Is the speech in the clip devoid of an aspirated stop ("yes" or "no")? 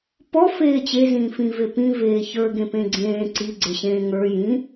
yes